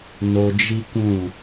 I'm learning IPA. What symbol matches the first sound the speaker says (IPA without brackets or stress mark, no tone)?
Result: n